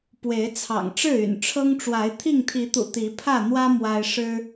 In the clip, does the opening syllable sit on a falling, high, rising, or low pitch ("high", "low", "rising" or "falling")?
rising